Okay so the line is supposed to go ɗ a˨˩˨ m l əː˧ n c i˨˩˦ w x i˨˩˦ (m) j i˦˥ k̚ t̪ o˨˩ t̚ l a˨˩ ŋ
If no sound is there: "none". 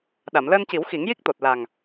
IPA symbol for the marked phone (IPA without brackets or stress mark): ŋ